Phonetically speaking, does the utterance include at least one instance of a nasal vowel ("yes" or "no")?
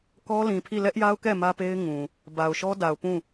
yes